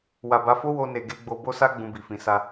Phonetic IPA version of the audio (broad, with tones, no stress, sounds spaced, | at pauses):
w a˨ b a˨˦ f o˦ w o˧ n e˨ ɡ e˧ ɡ͡b o˧ b o˦ s a˦ ɡ͡b ũ˧ b i˨ f ĩ˨˦ s a˧